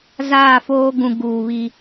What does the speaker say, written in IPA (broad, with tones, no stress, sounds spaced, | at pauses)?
z aː˦˨ f oː˦ ɡ ũ˨ ɡ uː˨ β i˦